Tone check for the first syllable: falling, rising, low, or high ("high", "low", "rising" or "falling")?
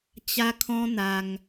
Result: high